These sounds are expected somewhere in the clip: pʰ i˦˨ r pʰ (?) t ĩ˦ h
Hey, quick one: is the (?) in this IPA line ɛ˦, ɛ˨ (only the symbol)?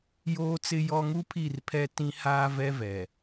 ɛ˦